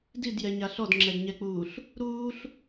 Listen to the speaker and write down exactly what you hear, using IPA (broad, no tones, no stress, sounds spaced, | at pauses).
d i d j ɛ ɲ a ɬ ɔ d ŋ͡ǁ ɛ d ɲ ɛ k͡p uː ɬ | ɾ uː ɬ